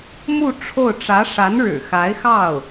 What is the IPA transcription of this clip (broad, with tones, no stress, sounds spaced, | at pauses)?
m u˥˧ ʈ͡ʂʰ o˥˩ ʊ̯ ʈ͡ʂ ä˧˥ ʂ a˧˥ n ɻ ɻ̩˨˩ x a˧˥ ɪ̯ x ɑ˥˩ ʊ̯